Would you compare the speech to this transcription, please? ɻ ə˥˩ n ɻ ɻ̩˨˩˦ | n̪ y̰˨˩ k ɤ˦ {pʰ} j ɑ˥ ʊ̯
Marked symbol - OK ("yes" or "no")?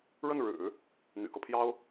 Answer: yes